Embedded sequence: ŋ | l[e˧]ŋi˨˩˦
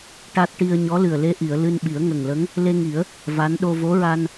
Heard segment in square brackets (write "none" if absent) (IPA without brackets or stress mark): e˧